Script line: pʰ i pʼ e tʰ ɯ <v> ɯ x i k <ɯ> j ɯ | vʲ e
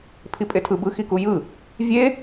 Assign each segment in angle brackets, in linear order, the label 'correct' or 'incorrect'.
incorrect: b, incorrect: u

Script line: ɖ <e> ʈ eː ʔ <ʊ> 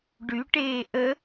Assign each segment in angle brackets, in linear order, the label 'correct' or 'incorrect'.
incorrect: y, incorrect: ə

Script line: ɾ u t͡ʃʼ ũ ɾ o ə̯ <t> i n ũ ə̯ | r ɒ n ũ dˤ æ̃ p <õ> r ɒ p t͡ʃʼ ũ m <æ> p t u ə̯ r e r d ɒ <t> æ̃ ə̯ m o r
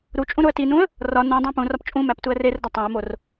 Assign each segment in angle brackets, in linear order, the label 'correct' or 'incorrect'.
correct, incorrect: ũ, correct, incorrect: tˤ

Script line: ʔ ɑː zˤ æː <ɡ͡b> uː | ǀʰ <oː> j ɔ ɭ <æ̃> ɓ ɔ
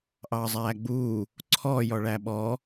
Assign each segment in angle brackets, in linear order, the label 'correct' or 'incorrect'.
correct, incorrect: ɔː, incorrect: æ

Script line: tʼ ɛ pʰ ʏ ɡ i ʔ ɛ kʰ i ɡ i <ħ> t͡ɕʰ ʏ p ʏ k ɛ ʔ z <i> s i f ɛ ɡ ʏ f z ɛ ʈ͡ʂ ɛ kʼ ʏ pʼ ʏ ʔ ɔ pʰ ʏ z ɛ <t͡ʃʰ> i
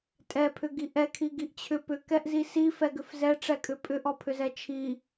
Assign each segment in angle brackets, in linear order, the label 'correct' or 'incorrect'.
incorrect: ʔ, correct, correct

